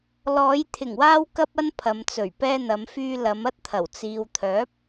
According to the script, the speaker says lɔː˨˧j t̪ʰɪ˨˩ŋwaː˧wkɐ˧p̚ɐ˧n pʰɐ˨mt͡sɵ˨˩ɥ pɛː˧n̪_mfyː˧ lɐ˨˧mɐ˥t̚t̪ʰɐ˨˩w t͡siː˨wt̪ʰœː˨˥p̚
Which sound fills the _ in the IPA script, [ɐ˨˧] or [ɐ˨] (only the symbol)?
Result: ɐ˨˧